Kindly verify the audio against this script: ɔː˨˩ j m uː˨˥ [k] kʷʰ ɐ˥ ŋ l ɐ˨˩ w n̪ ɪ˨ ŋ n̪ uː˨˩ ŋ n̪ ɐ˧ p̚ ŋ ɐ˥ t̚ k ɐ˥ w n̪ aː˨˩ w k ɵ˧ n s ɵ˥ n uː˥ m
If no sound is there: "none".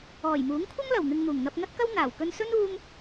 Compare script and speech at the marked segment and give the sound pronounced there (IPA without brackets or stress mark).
ŋ